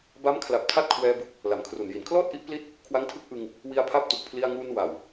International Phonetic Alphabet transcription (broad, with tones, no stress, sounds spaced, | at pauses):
b a˦˥ m kʰ l a˨˩ p̚ tʰ a˥˩ t̚ kʰ w ɛː˧ b ɯ˨˩ k̚ | l a˨˩ m kʰ r u˨˩ n j i˩˦ n kʰ l ɔː˥˩ t̚ ʔ i˦˥ ʔ p l i˥˩ t̚ | kʰ w a˦˥ ŋ tʰ ɯ˦˥ k̚ ʔ ɯ˧ ŋ | w i˧ a̯ pʰ a˦˥ p̚ t u˨˩ k̚ pʰ l i˧ a̯ ŋ uː˧ n w a˨˩ w